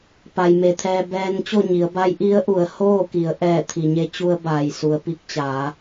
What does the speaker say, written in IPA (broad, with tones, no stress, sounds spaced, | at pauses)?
p a˩ j m e˩ t̪ʰ ɛː˧ b ɛː˧ n t͡ɕ o˥˨ ɲ i˩˧ ə̯ b a˧˥ j ʔ i˧˥ ə̯ ʔ u˩˧ ə̯ h oː˥˨ k i˩˧ ə̯ ʔ ɛː˧˩ t̪ʰ i˩ ɲ e˧ t͡ɕ u˧ ə̯ b aː˩ j s u˩ ə̯ p i˧ k̚ t͡ɕ aː˩˧